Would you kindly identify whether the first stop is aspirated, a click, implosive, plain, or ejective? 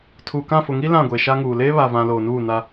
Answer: aspirated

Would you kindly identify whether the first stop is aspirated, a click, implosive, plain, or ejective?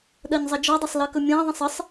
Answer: implosive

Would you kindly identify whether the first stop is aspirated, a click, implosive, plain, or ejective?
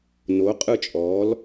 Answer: ejective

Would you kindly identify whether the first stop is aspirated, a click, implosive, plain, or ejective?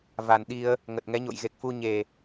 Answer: implosive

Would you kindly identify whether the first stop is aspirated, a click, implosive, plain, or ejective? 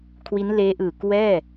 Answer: aspirated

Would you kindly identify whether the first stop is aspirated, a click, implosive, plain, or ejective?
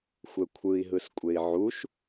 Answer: aspirated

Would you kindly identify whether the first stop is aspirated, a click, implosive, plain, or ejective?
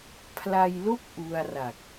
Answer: aspirated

